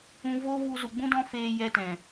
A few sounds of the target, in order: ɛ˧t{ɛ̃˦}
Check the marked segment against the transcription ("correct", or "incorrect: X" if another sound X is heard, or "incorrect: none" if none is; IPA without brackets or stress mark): incorrect: ɛ̃˨